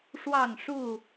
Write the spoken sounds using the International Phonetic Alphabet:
ʂ w ɑ˥˨ ŋ ʂ u˥˨

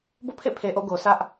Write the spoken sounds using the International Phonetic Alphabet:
b o̰˦˨ pʰ ḛ˦˨ pʰ e˨ ʔ o̰˦˨ ɡ o˨ s ä˦ ʔ

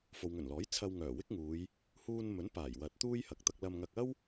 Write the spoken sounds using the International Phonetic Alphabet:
f o˨ w ŋ ɵ˨˩ n l ɔː˨˥ j t͡sʰ ɐ˧ w ŋ œː˨˩ w ɪ˥ k̚ ŋ uː˨˧ j | h uː˧ n m ɵ˨˥ n p aː˨˩ j w ɐ˨˥ t̚ t̪ uː˥ j h ɐ˨ k̚ t̪ ɐ˧ k̚ l ɐ˧ m ŋ ɐ˧ k̚ ɐ˥ w

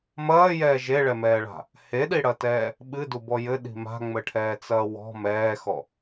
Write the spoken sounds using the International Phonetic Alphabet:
m ɐː j ɛː ʒ e ɭ ɛ m ɛː ɭ a̤ | h e ɗ i ɽ ɐ t ɛː | ɓ ɨ d u b ɔ j ɘ ɗ i̤ m a̤ ŋ͡m ɘ ʈʰ ɛː t͡s ɐː w ɔ̤ m ɛː x ɔ

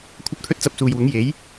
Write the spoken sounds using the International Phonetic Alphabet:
kʷʰ ɐ˥ p̚ t̪ʰ ɵ˥ t̚ t͡s ɐ˧ p̚ s uː˨ j w ʊ˨˥ ŋ j e˨˥ j

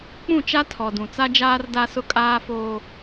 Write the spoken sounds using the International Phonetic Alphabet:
k͡p ũ˦˨ t͡ʃ a˦ tʰ ɔ˨ d ũ˨ t͡s a˦ d͡ʒ aː˦ r d a˦ s ʊ˦ kʼ aː˦ f oː˦

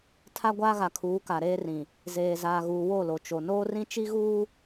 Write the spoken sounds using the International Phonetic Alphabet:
tʰ a˦ ɡʷ aː˦ ɣ a˨ kʰ uː˨˦ k a˨ ɾ eː˦ r ĩ˨ | z eː˨ z aː˨ ɣ uː˨ w o˦˨ l o˨ t͡ʃ o˨ n oː˦ r ĩ˦ t͡ʃ i˦ ɣ uː˦

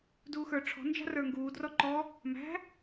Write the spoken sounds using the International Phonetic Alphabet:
d uː x ə˞ ʈ͡ʂʰ ɔ̤ n d͡ʒ ɑ̤ r ə˞ ŋ ɡ uː d r ɔ ǃ ɔ | m æ̤

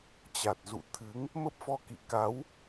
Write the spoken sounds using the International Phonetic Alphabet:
t͡ɕ a˨˩ t̚ z ṵ˧˨ t̪ʰ ɨ˨˦ ŋ | m ə˦˥ p̚ f ɔ˧ k ḭ˧˨ k a˨˦ w

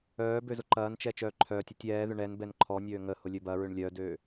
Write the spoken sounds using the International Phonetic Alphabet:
œː b ø z ʊ ǃ ɐː n t͡ʃ ɛ t͡ʃ œː ǃʰ œː tʲ ɛ tʲ ɛː ð ʏ ɳ ɛ n b ɛ n ǃʰ ɔ nʲ øː ŋ ə h ʊ lʲ ø b ɐ ɹ ʏ ɳ lʲ œ d øː

